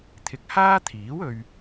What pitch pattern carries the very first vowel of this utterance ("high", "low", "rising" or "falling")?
low